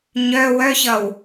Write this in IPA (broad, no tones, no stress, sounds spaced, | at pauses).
ɲ œ w œ ç ʌ w